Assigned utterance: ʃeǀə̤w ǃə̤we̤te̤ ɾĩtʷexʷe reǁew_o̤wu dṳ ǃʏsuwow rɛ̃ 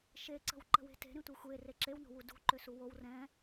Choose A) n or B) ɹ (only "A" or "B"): A